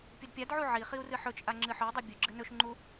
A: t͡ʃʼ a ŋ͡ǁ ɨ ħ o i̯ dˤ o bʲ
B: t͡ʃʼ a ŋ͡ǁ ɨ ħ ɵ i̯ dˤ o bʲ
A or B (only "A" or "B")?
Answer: B